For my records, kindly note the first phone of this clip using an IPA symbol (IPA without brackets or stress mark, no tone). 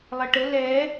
lˠ